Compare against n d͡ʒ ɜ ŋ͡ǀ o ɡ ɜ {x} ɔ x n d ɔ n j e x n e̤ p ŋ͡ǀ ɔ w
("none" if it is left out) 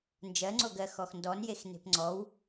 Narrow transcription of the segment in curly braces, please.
x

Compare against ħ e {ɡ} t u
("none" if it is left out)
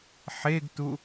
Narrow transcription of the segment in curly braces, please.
ɡ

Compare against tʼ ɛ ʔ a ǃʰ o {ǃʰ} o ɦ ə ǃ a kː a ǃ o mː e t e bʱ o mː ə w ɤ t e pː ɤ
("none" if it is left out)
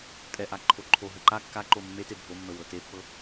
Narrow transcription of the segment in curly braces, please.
ǃʰ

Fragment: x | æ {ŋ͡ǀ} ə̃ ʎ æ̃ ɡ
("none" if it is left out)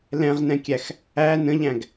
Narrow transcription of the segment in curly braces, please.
n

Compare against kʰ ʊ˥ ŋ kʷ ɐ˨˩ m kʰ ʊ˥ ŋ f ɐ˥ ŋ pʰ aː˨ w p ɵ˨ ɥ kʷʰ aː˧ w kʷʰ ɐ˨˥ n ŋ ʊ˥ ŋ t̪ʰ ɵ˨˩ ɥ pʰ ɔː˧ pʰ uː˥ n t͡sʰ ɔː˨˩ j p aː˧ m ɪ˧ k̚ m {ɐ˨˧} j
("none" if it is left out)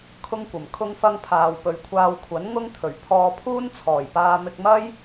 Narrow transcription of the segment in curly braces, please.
ɐ˥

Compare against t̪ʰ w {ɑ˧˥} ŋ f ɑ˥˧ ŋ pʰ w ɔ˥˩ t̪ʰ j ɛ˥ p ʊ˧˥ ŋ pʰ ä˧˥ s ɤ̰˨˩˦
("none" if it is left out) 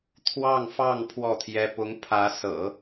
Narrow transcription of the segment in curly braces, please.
ɑ˥˧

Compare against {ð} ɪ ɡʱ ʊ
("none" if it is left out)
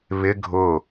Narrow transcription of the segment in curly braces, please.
β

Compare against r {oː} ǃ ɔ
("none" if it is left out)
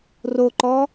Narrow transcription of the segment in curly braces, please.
o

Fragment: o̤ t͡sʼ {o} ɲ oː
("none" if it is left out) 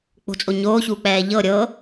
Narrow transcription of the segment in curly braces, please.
o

